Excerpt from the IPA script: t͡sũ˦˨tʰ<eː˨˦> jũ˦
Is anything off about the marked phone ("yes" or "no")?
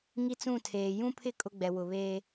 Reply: yes